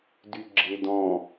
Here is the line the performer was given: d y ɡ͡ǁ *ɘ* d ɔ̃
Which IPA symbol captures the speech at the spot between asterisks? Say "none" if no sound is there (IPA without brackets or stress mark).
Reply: e